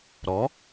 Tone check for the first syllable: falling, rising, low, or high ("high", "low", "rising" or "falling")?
rising